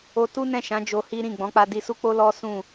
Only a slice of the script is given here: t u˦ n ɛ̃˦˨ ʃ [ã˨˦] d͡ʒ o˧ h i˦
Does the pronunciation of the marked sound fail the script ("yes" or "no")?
no